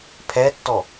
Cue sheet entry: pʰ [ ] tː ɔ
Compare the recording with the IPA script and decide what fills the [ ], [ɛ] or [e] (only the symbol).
ɛ